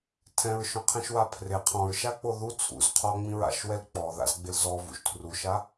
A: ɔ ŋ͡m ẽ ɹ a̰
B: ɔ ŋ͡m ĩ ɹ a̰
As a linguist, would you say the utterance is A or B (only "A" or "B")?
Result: B